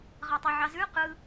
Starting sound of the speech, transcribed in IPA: ʁ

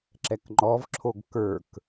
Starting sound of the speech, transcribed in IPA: ǁ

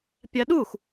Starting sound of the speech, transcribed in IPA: pʲ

